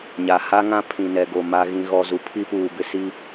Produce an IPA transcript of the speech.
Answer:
ɲ a˨ h a˦ ŋ ã˦ pʰ ĩ˨ n ɛ˨ ɡ o˨ m a˨ ɣ ĩ˨ ɣ ɔ˨ z u˨ pʰ i˦ p uː˨ b ɪ˦ s i˦

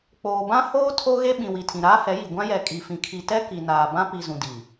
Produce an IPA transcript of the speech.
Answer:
k͡p oː˨ b ã˦ h oː˦ tʰ o˦ ɣ e˦ ɓ ĩ˨ w i˨ tʰ ĩ˨ ɾ aː˦ h ɛ˨˦ j i˨ ɡʷ ã˦ j ɛ˨ kʼ i˨ f ĩ˨ kʰ i˨ t ɛ˦ k i˨ n aː˨ b ã˦ p i˨ z ũ˨ d i˨

